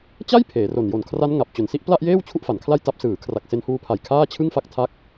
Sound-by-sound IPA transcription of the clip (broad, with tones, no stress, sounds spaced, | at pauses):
t͡ɕ a˥˩ j pʰ eː˩˦ r o˨˩ n j o˨˩ n kʰ r a˦˥ n ŋ a˨˩ p̚ t͡ɕ o˨˩ n s i˥˩ ʔ p l a˥˩ ʔ j eː˥˩ w t͡ɕʰ u˥˩ ʔ f a˩˦ n kʰ l a˥˩ j t a˦˥ p̚ s ɯː˩˦ kʰ r a˨˩ k̚ s e˧ n h uː˧ pʰ a˨˩ j kʰ aː˥˩ t͡ɕʰ ɯ˥˩ ŋ f a˥˩ k̚ tʰ a˦˥ k̚